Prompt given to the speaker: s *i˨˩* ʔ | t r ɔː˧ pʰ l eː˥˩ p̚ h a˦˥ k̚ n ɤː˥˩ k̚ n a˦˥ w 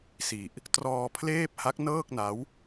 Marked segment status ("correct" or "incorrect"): correct